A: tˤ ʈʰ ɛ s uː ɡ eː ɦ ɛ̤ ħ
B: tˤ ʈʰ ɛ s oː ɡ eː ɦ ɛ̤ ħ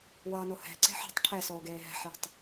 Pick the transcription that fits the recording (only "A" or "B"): B